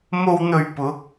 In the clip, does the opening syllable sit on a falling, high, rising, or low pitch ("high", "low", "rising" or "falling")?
low